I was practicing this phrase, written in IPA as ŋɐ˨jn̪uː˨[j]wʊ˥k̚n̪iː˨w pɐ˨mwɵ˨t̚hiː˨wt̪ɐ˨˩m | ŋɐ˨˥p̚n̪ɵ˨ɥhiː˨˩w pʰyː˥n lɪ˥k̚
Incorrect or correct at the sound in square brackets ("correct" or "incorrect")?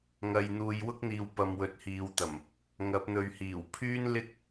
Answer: correct